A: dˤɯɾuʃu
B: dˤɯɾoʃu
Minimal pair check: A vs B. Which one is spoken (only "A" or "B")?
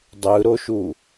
B